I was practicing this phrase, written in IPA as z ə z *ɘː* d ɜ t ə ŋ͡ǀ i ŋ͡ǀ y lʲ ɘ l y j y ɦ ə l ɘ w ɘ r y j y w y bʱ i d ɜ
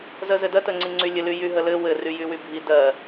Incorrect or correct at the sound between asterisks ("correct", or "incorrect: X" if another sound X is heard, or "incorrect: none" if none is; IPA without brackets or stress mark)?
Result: incorrect: ɘ